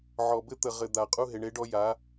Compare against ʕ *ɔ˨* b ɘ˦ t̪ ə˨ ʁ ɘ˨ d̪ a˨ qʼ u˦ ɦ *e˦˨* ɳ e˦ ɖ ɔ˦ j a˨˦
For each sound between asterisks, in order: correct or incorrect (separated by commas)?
correct, incorrect